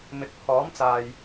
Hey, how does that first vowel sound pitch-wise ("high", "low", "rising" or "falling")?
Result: low